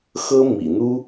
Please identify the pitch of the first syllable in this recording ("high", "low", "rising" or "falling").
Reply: high